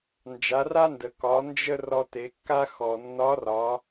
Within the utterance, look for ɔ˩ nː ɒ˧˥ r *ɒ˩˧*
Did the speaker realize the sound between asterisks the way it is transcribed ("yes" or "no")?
yes